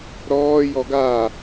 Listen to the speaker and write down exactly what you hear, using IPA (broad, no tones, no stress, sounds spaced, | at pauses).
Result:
ɾ ɔː j ɔ ɡ a